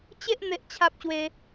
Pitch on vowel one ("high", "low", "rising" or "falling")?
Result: high